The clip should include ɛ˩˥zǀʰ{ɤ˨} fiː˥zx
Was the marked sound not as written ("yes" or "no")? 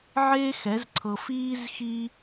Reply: no